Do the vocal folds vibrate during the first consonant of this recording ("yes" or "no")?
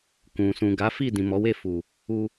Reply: no